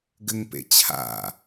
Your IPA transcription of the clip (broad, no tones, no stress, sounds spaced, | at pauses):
ɡ ɘ ŋ p ḛ t͡ɕʰ a̰